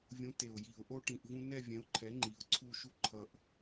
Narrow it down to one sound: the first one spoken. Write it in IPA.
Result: vʲ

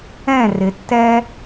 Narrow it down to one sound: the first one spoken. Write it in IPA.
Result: ɛ̃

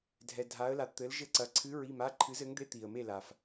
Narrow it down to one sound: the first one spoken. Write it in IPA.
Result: dʱ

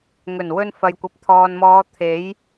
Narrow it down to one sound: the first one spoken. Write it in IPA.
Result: ŋ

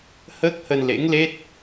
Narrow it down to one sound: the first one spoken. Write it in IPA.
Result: h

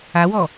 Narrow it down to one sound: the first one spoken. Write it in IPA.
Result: a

